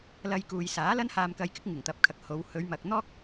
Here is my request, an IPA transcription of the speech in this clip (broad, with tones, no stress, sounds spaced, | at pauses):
l ɐ˧ j k uː˨ j s aː˨˥ l ɐ˥ n h aː˧ m k ɐ˧ j k ɪ˥ k̚ ŋ ɪ˨˩ ŋ t̪ ɐ˨˥ p̚ kʰ ɐ˨ k̚ h o˨˧ w h ɵ˨˧ ɥ m ɐ˨ k̚ n̪ ɔː˥ k̚